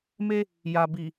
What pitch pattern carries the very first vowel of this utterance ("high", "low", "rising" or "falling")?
high